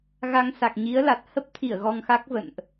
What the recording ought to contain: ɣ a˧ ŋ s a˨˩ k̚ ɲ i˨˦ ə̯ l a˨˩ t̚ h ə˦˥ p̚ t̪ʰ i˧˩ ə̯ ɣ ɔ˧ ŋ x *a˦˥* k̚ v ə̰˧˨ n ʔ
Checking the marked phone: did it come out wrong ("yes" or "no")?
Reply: no